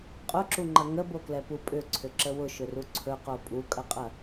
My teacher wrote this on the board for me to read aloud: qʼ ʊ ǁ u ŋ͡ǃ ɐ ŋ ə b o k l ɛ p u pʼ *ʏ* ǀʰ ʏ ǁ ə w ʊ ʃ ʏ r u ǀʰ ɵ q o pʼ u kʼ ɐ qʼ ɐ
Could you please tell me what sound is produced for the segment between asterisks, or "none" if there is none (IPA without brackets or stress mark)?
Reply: ʏ